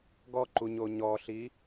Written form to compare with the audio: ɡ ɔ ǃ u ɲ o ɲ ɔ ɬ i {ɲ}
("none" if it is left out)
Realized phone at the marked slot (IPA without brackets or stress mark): none